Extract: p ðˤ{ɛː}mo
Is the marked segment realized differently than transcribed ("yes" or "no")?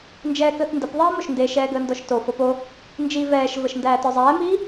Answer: yes